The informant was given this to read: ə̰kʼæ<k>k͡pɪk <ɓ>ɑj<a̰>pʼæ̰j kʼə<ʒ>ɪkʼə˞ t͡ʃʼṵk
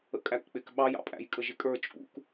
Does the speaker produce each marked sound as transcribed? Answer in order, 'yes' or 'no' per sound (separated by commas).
yes, yes, no, yes